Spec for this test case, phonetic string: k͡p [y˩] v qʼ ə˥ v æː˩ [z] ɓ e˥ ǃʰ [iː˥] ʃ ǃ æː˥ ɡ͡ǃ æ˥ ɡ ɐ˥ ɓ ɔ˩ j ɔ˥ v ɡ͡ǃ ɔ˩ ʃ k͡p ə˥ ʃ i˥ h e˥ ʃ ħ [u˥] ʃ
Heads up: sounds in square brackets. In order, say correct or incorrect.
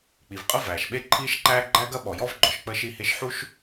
incorrect, incorrect, correct, correct

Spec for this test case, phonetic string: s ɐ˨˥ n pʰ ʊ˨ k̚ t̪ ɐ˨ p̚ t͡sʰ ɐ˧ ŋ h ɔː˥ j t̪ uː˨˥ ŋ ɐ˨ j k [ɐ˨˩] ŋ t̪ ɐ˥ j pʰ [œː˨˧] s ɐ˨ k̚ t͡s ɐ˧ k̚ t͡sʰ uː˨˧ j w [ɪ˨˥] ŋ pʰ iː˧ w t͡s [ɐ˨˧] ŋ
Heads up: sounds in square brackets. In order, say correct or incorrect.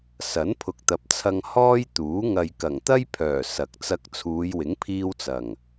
correct, incorrect, correct, incorrect

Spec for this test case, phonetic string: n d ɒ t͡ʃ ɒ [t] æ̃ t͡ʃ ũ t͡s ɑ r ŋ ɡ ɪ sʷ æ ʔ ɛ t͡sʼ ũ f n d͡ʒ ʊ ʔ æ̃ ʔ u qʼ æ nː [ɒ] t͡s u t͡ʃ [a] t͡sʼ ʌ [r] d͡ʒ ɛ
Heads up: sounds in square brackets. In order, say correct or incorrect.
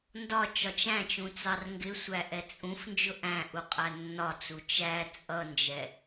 incorrect, correct, incorrect, incorrect

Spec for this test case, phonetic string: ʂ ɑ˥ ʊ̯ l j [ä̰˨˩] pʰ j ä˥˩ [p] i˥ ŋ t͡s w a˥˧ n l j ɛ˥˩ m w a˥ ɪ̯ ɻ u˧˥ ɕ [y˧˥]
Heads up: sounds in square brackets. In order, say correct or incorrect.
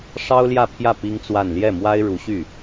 incorrect, correct, incorrect

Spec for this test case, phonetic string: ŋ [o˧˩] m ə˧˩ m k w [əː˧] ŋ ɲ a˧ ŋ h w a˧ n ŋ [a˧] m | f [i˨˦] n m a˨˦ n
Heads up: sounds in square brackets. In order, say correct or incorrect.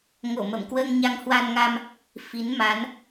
correct, correct, correct, correct

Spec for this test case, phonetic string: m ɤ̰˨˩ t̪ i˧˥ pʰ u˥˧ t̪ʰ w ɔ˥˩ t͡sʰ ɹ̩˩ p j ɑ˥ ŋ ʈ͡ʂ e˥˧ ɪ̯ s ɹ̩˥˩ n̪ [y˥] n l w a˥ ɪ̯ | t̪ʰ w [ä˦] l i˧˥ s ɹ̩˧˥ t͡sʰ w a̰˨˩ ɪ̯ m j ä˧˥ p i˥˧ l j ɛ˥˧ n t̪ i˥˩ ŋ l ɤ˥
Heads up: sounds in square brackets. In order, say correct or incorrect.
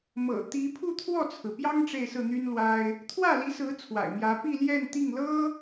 correct, incorrect

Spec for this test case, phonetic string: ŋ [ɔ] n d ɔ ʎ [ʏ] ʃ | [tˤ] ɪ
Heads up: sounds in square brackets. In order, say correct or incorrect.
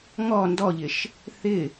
correct, incorrect, incorrect

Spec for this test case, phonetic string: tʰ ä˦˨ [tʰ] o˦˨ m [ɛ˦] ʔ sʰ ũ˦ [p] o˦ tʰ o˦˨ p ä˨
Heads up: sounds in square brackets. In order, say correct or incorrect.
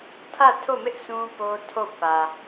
correct, incorrect, correct

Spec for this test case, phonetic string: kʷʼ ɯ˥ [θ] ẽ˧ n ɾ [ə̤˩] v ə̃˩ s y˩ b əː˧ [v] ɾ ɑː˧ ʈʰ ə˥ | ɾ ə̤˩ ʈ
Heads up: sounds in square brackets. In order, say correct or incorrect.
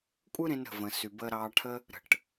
incorrect, correct, incorrect

